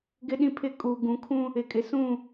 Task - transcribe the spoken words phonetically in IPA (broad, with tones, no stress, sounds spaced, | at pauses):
ɡ ɪ˦ ɗ ĩ˦ pʰ ɪ˦˨ kʼ uː˨ ɡ ũ˨ kʰ ũ˦ | ɪ˨ kʼ ɪ˨ s ũ˦˨